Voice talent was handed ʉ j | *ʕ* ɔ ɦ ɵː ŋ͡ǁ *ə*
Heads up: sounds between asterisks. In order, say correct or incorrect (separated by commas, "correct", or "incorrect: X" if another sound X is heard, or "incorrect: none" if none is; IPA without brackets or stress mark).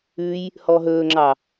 incorrect: h, incorrect: ɑ